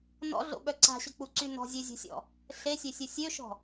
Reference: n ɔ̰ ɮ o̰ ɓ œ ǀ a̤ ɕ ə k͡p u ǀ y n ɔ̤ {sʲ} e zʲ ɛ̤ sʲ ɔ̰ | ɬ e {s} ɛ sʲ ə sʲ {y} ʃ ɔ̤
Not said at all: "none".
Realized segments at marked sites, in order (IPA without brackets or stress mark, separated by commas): zʲ, sʲ, ø